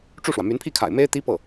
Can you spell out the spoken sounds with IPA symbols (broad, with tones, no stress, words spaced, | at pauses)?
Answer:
ʈ͡ʂu˥˩ʂwä˩ my˧˥npʰi˥˩kʰa̰˨˩ɪ̯ me˥ɪ̯t̪i˥pɤ˥˩